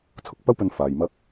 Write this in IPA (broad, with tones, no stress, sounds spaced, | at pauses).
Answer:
t͡sʰ ʊ˧ k̚ p ɐ˥ w p ɵ˧ n f aː˨ j m ɐ˥ k̚